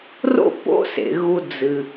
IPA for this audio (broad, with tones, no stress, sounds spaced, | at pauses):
r o̰˥ p o̰˥ s ḛ˩ ɣ u˨ d͡z ɨ˩